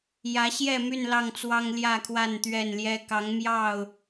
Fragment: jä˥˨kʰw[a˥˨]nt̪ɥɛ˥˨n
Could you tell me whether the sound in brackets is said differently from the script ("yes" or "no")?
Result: no